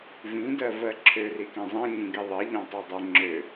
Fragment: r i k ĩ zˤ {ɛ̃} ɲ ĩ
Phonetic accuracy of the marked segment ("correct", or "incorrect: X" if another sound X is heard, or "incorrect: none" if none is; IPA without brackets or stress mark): correct